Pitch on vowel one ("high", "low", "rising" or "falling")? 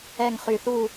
falling